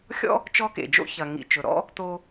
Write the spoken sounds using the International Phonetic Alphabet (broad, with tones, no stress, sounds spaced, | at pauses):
xʲ ɔ̰˥ | t͡ʃ ɔ˥ k ḛ˩ d͡ʒ o̰˥ ç ɐ˩ ŋ ḭ˩ t͡ʃ ɵ˩ ɾ ɔ̰˥ | t o˧